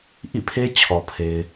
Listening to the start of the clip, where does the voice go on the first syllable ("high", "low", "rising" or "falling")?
falling